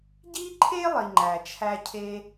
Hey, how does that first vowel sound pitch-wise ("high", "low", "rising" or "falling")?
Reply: high